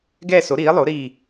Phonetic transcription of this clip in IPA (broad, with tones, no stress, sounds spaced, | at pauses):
ɡ ɛː˥˧ s o˨˥ ɾ iː˨˥ lˠ o˨˥ ɾ iː˥˧